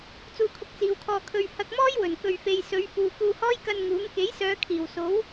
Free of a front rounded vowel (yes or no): no